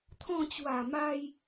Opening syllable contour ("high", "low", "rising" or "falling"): falling